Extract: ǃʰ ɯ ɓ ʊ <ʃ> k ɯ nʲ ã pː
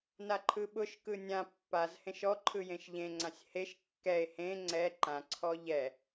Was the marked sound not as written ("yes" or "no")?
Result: no